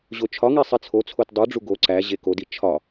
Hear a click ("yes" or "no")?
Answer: yes